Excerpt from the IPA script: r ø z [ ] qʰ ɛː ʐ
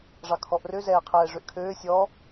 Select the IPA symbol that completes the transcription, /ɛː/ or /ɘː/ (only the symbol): ɛː